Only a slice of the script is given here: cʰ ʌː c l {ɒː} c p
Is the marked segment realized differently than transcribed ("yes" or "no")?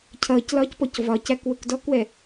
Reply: no